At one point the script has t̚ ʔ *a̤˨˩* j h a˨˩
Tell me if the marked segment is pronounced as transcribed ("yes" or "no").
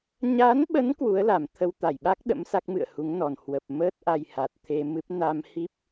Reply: no